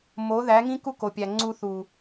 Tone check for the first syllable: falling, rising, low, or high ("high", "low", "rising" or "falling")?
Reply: rising